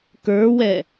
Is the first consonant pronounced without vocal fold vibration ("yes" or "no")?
yes